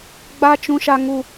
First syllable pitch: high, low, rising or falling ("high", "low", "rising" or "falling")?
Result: high